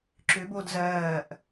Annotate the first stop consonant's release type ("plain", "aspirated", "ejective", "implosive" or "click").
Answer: click